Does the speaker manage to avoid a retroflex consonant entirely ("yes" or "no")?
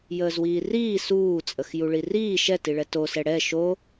no